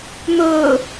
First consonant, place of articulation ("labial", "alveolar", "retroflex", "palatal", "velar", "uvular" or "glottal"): labial